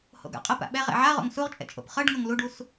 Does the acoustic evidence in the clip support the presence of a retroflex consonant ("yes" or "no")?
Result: yes